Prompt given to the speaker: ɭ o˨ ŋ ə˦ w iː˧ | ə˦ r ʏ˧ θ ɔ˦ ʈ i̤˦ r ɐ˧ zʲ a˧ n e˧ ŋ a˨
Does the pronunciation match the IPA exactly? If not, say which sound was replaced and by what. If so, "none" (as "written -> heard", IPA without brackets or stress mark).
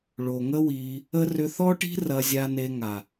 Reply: none